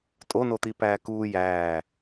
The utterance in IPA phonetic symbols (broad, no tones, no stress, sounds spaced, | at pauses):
tʼ o n o t̪ i p æː k uː j æː